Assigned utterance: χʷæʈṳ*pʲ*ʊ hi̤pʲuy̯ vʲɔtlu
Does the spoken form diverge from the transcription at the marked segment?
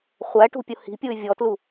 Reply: no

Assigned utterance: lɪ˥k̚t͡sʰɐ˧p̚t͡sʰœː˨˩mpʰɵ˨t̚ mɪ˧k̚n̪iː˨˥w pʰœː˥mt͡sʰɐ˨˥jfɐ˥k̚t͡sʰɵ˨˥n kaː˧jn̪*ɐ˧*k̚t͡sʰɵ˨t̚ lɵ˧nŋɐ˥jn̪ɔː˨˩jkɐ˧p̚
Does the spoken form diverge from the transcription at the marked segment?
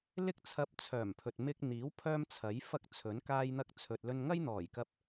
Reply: no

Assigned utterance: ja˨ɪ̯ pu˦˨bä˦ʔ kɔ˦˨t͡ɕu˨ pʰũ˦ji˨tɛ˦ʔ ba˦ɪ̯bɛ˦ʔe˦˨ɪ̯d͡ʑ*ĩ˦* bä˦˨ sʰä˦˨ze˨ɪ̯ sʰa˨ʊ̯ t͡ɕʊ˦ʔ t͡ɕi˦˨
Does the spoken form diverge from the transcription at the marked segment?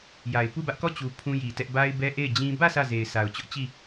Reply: no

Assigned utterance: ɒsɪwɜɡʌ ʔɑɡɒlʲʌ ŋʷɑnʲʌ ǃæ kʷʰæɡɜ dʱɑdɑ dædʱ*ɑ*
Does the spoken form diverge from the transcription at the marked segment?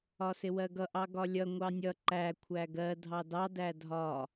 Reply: yes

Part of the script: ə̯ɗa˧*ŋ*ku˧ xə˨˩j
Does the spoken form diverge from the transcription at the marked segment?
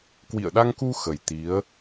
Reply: no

